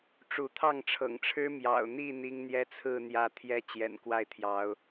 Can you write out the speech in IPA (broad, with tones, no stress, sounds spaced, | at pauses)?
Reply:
ʈ͡ʂ u˨˦ t̪ʰ ɑ˥˨ ŋ ʈ͡ʂʰ ɤ̰˨˩ ŋ ʈ͡ʂʰ ɻ̩˦ m j ɑ̰˨˩ ʊ̯ n̪ i˥˨ n̪ i˦ ŋ n̪ j ɛ˦ t͡sʰ ɹ̩˥˨ n̪ j ä˥˨ t̪ʰ j ɛ˦ t͡ɕ j ɛ̰˨˩ n k w a˥˨ ɪ̯ t̪ʰ j ɑ˨˦ ʊ̯